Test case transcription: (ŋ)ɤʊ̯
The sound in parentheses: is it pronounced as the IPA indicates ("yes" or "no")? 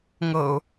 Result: yes